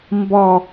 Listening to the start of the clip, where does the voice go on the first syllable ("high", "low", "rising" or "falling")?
low